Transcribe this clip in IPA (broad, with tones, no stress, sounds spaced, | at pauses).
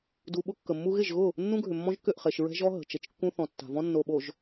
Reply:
d u˨ ɓ ʊ˦ kː ə˨ mː u˦ ɣ ɪ˦˨ ʒ ɣ ʊ˦˨ | nː ũ˦ ɡʱ ʏ˨ mː ɔ̃˦ ʒ k ʏ˦˨ ʔ χ e˨ ʃ ɹ ɛ̤˦ ʒ ɔ˦ ɦ ə̤˨ t͡ʃ ə˨ t͡ʃ kː ũ˦ θ ɔ̃˨ tː a̤˨ v ɔ̃˦ nː o˨ ɓ o˨ ʒ